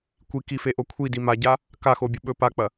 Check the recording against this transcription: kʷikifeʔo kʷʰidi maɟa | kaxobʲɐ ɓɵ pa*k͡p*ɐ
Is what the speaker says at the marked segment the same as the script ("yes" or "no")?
yes